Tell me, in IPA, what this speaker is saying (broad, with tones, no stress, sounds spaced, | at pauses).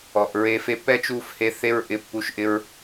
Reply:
ɔ˨ ʔ ɹ e˧ f e˧ pː ɛ˦ t͡ʃ u˦˨ f h e˧ θ e˦ ɹ ʔ ɪ˧ pː u˧ ʃ ʔ ɪ˦ ɹ